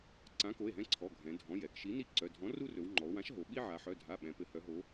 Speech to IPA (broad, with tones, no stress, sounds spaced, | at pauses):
ǀ ã˨˥ k o˩˧˩ e̯ ɦ ɛ̃˦ ǀʰ ɔ˩˧˩ ɡʱ ɛ̃˩˧ dʱ ɔ̃˩˧˩ j ɛ˩˧ k ʃ i˨˥ n i˦ ǀ œ˩˧˩ dʱ ɔ̃˨˥ r u˦ r ɵ˩˧ w ŋ͡ǃ ɔ˩˧ o̯ w ã˨˥ ʃ ɦ o˩˧ ɓ i˦ ʕ a˩˧ ħ œ˩˧˩ dʱ a˩˧˩ ɓ ɛ̃˩˧ p ɘ˩˧ h œ˩˧ ɦ o˩˧